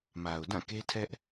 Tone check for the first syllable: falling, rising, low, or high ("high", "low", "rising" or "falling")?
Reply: low